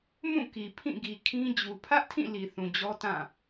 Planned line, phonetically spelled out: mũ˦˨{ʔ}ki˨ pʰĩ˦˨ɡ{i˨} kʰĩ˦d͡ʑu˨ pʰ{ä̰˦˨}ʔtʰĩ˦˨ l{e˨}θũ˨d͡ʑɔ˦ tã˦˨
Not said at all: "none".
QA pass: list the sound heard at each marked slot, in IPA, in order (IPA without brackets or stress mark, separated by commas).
none, i˨, ä˦, i˨